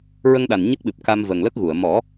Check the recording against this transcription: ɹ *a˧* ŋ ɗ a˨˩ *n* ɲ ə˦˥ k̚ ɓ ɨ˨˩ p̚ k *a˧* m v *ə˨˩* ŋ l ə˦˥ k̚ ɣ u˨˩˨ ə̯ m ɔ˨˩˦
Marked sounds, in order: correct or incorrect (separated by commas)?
incorrect, correct, correct, correct